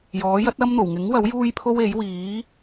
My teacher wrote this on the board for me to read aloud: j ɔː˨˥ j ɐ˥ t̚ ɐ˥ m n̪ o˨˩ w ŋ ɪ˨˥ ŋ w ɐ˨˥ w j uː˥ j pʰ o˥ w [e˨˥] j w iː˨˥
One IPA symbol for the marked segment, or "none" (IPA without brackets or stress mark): e˨˥